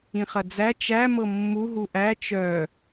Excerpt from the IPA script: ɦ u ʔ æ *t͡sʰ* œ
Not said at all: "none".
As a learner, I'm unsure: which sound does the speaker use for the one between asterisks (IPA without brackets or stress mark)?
t͡ʃ